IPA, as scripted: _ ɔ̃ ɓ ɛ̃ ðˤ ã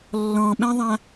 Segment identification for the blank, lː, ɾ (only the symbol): lː